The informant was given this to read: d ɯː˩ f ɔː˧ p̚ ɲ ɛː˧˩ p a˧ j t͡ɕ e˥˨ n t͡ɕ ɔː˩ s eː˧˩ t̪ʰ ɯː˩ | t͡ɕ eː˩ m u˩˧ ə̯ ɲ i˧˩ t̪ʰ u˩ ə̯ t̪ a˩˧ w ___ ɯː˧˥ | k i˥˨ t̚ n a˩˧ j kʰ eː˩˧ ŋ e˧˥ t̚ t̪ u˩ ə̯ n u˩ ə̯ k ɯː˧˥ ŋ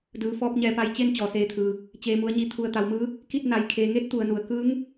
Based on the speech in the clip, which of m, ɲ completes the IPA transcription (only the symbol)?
m